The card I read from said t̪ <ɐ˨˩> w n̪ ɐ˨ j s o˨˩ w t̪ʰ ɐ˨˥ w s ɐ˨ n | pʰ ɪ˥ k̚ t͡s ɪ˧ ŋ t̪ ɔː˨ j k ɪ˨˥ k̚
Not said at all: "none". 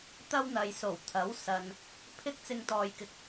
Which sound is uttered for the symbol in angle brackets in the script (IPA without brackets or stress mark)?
ɐ˥